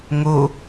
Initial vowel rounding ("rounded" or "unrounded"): rounded